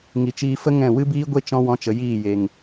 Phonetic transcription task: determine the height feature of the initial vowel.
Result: high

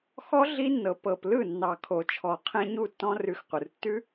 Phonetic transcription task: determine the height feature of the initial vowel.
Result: mid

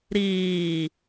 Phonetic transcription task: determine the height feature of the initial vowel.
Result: high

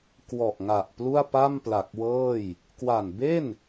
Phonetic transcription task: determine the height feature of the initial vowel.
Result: mid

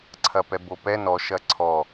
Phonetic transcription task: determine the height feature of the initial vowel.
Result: low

